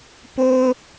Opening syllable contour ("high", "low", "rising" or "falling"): high